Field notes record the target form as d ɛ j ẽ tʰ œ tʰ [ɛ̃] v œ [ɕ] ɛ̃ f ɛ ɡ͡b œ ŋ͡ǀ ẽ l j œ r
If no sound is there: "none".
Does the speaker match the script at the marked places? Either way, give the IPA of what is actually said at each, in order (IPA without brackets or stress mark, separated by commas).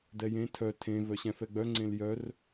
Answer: ẽ, ɕ